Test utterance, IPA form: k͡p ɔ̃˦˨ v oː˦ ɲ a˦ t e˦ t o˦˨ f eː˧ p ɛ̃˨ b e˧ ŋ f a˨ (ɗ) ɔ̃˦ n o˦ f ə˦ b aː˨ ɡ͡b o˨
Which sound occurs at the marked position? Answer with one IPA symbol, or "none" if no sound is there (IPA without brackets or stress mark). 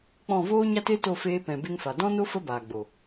d